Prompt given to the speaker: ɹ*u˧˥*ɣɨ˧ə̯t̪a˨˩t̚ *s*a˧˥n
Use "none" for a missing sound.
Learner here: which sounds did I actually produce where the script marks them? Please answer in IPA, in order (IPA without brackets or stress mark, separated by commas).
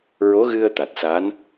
o˧˥, s